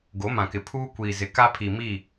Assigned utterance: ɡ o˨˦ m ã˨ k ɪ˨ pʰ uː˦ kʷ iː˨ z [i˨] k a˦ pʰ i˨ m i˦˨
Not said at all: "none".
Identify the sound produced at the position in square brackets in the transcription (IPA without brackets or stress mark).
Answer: ɪ˨